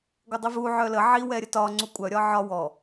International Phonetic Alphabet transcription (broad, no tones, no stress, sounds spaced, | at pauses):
ɡʷ ə dˤ i v u ʕ œ l ə ʕ i w ɛ ɾʲ ə t ɒ ŋ͡ǀ u kʷʼ œ ɾʲ ɒ ʕ ɒ w ɔ